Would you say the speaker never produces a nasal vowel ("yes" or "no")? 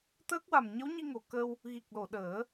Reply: yes